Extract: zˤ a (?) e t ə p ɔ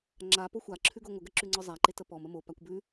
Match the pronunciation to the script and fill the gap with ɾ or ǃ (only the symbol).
ǃ